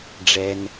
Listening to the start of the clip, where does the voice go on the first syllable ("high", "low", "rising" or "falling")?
low